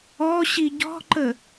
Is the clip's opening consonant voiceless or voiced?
voiceless